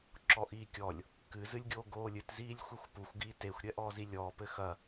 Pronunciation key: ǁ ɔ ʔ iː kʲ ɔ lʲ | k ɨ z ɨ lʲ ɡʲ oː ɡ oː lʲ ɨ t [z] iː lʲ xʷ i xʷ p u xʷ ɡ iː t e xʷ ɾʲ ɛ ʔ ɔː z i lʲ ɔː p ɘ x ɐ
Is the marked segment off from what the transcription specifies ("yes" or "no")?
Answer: no